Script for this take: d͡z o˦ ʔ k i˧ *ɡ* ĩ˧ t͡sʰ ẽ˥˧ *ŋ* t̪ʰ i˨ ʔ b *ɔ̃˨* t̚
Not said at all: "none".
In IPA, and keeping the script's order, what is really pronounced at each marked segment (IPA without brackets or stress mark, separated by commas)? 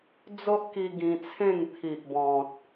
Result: ɡ, ŋ, ɔ̃˨